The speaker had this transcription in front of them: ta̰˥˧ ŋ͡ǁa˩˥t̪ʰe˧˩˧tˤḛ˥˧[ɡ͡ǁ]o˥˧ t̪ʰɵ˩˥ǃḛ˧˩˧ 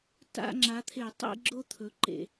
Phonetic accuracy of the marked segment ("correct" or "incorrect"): correct